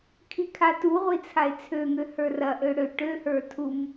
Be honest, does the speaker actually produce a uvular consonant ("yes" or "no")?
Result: yes